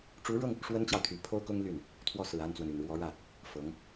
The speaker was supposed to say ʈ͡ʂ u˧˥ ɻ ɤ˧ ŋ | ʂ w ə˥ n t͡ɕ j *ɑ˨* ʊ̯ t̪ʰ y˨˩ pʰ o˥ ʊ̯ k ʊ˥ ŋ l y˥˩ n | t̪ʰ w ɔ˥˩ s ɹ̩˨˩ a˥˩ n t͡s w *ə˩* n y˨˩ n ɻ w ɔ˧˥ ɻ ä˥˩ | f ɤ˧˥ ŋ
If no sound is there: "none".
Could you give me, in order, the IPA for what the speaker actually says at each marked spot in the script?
ɑ˨, ə˩

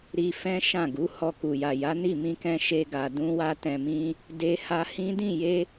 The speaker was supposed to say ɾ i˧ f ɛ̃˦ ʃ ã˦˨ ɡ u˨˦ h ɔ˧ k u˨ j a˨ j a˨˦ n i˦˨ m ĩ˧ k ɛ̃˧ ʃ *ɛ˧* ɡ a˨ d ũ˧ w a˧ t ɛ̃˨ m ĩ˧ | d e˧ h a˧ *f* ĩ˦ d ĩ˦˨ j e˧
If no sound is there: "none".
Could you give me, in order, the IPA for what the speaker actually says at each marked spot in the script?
e˧, h

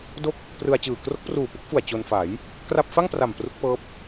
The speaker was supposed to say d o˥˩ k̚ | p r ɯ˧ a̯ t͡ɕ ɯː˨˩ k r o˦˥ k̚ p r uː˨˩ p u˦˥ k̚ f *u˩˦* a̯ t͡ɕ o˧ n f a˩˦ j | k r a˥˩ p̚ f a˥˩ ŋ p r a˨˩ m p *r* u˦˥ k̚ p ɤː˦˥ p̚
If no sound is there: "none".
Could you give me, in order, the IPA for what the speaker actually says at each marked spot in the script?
u˨˩, r

